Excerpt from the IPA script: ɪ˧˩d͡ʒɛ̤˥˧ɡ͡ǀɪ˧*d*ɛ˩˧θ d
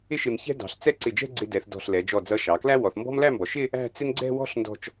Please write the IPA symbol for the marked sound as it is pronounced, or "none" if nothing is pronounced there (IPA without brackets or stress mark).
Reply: d